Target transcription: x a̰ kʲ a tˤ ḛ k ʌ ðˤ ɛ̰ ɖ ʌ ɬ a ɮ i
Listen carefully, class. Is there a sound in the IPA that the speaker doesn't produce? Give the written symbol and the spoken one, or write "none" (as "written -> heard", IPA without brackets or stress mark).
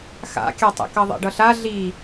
none